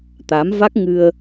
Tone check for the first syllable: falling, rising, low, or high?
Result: rising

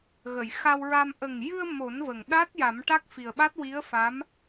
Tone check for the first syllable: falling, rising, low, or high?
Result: low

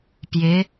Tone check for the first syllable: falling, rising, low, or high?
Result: rising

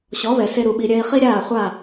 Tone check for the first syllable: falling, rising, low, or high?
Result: rising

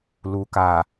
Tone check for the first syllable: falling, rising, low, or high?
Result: low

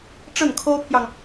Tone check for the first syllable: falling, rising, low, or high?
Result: falling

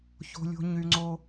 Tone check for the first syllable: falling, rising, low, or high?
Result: high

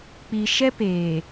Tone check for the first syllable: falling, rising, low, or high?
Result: low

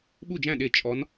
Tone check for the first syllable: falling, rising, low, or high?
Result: falling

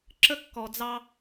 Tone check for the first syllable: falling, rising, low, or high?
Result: high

